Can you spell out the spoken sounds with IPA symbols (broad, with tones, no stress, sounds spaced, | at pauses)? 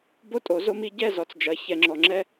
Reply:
b o˦ tʼ o˨˦ z o˦ m i˦ ɟ ɛ˦˨ z ɔ˨ t͡s d͡ʒ ɐ˨˦ ç ɛ˨ ŋ͡ǁ ɔ˨ ŋ͡ǁ ɛ˦